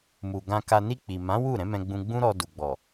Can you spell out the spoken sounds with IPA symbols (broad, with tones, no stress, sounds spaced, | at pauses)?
m u˨ ɡ ã˧ k a˧ n i˧ k͡p i˨ m ã˨˦ w u˦˨ ɾ ɛ̃˨˦ m ɛ̃˧ ɡ͡b ũ˧ ɡ͡b ũ˦ ɾ ɔ˧ d u˨ ɡ͡b ɔ˨